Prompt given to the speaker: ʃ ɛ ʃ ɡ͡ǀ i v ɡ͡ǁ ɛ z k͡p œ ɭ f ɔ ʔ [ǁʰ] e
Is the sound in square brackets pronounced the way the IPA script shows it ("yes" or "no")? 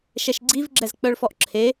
yes